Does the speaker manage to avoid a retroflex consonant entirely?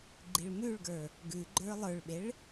no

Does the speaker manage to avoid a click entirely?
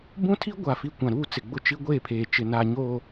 yes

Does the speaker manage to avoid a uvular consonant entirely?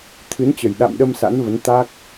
yes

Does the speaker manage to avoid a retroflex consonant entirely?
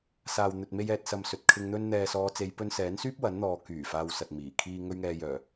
yes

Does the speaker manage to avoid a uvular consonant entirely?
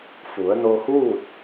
yes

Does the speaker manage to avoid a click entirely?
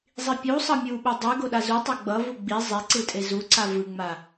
no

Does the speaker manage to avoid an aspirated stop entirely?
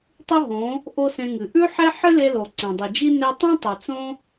yes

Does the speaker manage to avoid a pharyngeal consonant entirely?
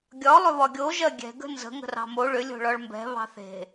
yes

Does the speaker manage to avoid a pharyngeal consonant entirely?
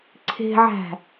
no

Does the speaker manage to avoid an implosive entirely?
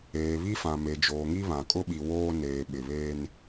no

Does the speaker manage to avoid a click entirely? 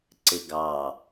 no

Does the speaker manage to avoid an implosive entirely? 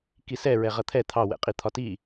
yes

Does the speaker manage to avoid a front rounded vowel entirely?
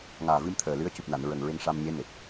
yes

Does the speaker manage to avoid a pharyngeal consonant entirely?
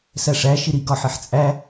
no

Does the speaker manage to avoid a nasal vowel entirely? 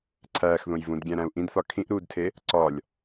no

